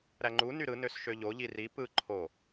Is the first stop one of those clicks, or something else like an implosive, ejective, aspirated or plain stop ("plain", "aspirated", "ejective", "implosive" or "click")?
click